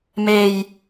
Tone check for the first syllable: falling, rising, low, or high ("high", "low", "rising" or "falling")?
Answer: low